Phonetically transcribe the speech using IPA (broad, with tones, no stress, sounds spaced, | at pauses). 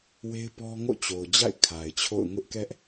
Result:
w e˦ ɪ̯ p ɔ˦ ŋ o̰˦˨ t͡ɕ o˨ ʊ̯ d͡ʑ a̰˦˨ ɪ̯ kʰ a˨ ɪ̯ t͡ɕʰ o̰˦˨ ʊ̯ ŋ ʊ˦ ʔ k ɛ˦ ʔ